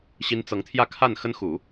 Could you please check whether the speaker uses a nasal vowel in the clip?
no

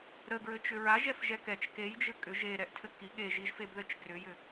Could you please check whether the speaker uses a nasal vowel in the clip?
no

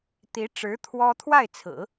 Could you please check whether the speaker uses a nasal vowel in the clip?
no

